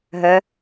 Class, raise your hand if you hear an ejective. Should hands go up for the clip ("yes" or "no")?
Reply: no